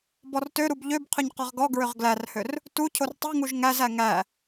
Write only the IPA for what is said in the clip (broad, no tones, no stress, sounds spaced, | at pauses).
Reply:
b ɔ r t ø ɾ u b ʎ ø b qʰ ʏ ɲ q ɔ ʁ ɡ ɔ ɡ ɹ ʏ ʁ ɡ l æ r h ø r | t u cʰ o r tˤ u ŋ u ʒ ŋ æ z æ ŋ æ